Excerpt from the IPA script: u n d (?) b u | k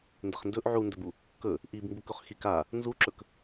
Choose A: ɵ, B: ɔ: A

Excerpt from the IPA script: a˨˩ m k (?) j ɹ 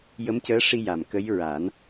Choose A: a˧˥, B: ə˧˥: B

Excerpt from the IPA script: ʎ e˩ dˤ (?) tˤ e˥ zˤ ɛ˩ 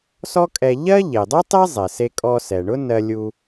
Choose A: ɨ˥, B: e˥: A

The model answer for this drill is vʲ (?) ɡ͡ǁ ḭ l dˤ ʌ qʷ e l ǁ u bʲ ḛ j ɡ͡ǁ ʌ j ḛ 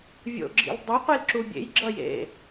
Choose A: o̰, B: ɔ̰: A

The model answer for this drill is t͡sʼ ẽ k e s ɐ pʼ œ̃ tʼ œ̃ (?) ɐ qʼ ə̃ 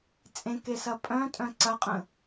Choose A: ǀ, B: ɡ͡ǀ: A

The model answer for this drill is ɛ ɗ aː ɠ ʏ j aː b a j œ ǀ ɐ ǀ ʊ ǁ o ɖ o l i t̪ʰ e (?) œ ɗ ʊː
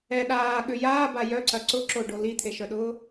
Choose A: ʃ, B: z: A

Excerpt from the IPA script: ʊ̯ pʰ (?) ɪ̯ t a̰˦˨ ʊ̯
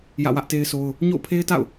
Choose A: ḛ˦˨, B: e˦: B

